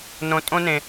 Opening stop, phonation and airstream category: ejective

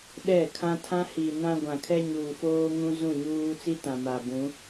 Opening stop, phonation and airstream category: implosive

